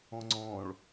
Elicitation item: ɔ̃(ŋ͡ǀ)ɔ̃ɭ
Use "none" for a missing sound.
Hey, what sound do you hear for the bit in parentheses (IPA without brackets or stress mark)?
ŋ͡ǀ